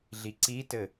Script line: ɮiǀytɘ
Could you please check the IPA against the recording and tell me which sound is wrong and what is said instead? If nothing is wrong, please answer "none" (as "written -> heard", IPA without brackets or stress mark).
y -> i